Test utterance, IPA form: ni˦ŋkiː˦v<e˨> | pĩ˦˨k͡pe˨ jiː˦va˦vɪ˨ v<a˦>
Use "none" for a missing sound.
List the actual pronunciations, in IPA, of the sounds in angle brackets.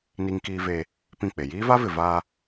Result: e˦, a˦

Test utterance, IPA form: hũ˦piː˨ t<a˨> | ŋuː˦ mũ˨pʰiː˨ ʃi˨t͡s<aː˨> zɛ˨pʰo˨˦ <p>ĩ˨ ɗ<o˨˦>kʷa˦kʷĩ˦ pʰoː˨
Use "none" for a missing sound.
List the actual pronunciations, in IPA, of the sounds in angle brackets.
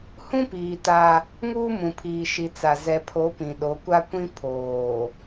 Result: a˦, a˨, p, o˨˦

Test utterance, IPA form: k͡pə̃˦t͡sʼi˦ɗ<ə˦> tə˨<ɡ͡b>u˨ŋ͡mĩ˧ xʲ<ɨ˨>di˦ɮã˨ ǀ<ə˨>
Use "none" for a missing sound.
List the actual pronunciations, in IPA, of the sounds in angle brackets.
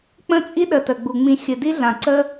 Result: ə˨, ɡ͡b, ɨ˨, ə˦

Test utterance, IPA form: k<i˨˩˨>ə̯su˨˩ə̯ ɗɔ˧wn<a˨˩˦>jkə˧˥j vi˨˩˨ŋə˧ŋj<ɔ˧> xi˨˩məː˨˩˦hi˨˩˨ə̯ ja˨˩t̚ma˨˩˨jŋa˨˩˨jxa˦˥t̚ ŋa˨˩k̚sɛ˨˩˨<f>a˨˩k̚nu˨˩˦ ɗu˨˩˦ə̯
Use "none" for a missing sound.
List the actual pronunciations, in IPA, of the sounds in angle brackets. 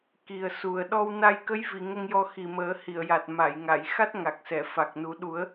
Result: i˨˩, a˧, ɔ˧, f

